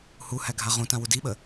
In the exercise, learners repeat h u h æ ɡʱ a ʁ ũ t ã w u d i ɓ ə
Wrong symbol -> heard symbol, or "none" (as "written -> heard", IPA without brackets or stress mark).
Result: none